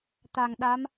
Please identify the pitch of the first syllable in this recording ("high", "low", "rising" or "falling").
low